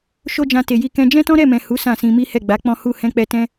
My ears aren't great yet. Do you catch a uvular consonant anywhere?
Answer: no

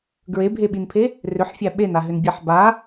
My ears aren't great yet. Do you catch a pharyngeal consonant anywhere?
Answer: yes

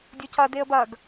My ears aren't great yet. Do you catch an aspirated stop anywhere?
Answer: no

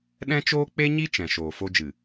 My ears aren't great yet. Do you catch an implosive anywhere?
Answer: yes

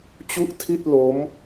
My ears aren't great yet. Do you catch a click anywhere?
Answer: no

